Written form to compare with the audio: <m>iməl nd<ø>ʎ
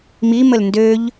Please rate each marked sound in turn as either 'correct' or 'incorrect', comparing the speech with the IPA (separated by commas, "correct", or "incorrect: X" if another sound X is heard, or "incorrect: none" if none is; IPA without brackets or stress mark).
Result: correct, correct